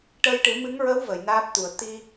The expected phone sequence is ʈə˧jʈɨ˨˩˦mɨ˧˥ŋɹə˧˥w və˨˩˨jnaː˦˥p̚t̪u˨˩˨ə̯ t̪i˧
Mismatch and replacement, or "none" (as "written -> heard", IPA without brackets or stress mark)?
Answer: none